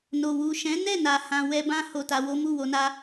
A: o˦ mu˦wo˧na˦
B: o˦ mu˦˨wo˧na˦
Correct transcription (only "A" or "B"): B